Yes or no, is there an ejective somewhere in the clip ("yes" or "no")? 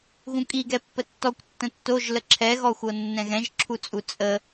yes